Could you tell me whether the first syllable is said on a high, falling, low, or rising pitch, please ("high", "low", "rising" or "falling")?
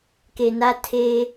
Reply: low